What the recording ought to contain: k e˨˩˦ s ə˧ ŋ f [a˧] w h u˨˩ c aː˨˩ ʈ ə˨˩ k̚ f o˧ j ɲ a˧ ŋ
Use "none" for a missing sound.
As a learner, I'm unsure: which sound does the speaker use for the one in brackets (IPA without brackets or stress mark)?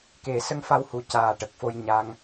a˧